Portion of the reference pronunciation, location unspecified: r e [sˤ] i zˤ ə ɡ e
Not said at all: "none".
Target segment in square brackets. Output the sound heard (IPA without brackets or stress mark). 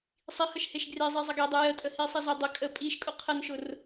zˤ